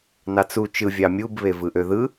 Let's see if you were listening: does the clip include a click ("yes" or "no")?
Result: no